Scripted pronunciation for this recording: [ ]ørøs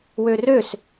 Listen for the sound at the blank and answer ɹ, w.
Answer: w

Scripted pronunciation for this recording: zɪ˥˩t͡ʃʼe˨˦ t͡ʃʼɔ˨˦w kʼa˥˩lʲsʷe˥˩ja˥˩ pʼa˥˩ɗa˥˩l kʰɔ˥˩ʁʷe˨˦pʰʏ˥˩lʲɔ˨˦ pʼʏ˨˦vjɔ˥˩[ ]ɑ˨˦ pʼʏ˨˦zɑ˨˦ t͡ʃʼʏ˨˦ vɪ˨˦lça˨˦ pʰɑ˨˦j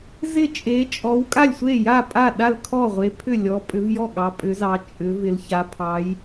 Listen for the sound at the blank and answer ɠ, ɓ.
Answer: ɠ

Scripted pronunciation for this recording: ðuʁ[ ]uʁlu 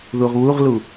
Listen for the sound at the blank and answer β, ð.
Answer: β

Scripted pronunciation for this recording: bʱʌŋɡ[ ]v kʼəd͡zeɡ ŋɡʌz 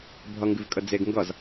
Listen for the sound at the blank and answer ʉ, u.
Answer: ʉ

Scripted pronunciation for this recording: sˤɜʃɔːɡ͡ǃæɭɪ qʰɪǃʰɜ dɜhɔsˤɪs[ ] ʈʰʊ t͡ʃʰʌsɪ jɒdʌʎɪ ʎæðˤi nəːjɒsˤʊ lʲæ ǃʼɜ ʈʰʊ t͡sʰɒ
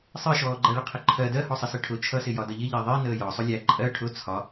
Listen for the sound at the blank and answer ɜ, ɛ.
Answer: ɜ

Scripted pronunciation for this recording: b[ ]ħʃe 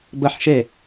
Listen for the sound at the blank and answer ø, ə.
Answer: ə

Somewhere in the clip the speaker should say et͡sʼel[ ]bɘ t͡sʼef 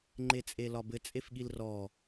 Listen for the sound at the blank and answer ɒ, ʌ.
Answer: ɒ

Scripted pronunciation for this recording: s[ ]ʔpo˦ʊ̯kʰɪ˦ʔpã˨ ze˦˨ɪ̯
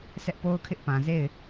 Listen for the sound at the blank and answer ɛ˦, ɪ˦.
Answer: ɛ˦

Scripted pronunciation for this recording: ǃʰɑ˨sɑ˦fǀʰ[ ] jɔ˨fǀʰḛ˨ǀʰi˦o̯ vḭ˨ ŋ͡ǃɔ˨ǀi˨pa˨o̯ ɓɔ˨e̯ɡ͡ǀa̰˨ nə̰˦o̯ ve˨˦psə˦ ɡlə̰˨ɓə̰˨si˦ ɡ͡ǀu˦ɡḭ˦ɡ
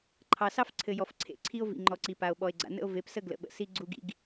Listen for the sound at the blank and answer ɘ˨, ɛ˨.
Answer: ɘ˨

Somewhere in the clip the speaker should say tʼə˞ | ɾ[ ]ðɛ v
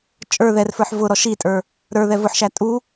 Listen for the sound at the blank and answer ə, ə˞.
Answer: ə˞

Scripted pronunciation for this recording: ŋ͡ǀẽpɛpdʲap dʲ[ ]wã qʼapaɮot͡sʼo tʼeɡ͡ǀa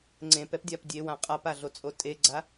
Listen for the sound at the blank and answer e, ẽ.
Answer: e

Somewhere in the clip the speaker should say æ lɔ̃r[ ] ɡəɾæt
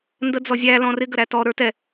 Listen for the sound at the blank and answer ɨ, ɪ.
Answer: ɪ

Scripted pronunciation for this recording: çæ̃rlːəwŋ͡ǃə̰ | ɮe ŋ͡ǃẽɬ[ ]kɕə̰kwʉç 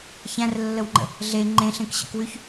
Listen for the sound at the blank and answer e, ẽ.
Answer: ẽ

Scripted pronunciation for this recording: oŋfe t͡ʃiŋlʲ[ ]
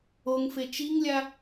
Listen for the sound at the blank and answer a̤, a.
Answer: a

